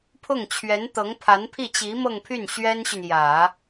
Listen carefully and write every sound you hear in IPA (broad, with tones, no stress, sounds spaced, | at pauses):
pʰ ʊ˥˩ ŋ t͡ɕʰ ɥ ɛ˧˥ n t̪ ɤ˧˥ ŋ pʰ a˧˥ n pʰ i˥˩ t͡ɕ i˧˥ m ɤ˥˧ ŋ pʰ y˥˩ n ɕ ɥ ɛ˥ n ɕ y˨ n j ä˨˩˦